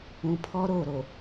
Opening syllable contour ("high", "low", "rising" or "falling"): low